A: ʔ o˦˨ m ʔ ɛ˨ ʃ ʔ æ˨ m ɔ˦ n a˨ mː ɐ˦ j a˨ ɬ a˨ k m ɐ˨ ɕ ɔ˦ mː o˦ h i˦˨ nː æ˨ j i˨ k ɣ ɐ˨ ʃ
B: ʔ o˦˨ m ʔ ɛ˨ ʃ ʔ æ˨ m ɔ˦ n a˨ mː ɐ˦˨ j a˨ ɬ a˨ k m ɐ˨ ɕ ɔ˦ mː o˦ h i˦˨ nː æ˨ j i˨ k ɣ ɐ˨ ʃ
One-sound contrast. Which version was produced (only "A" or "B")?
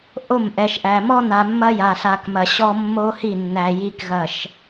A